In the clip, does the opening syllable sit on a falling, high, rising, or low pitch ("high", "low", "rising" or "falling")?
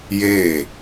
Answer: falling